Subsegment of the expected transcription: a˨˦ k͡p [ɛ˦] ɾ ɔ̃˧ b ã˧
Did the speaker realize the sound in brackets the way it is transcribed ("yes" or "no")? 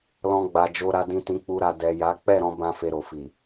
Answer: no